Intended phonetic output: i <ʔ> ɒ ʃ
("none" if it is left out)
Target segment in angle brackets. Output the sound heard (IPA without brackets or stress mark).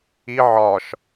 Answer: ʕ